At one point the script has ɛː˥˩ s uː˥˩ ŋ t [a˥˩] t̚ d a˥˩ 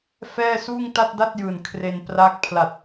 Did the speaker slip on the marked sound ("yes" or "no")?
no